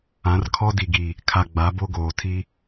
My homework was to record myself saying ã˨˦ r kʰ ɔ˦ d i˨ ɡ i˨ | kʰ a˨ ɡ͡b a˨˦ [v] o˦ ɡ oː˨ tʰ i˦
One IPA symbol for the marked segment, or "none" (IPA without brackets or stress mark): b